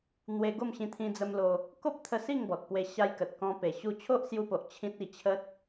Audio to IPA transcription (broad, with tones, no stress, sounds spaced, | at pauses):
n̪ w e˧ ɡ o˥˧ m ɕ ĩ˧ t̪ʰ ĩ˧ d͡z ə˧ m l o˧ | k o˦ p̚ t̪ʰ ə˧ s i˥˧ ŋ b ɔ˨ t̚ p w e˧ ɕ a˧ j k ə˨ t̚ k ɔ̃˧ p e˨˩ ɕ u˧ t͡ɕʰ o˦ ʔ s j u˧ p o˨ ʔ t͡ɕʰ ĩ˦ t̚ i˧ t͡ɕʰ ə˦ t̚